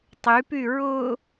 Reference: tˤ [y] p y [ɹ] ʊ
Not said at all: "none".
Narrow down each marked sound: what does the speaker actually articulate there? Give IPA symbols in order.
y, ɹ

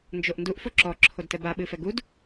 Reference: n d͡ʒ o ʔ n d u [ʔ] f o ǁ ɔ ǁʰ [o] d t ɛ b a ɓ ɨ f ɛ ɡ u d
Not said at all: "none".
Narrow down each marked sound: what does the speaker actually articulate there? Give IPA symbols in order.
ʔ, o

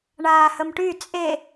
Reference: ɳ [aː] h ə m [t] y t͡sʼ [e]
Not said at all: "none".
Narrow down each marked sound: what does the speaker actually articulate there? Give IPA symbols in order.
aː, ʈ, e

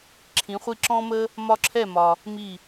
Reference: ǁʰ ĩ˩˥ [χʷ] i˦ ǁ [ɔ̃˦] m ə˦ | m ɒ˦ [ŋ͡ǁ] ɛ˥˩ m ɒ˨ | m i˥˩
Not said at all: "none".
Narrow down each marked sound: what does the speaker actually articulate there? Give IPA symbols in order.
χʷ, ɔ̃˦, ǁʰ

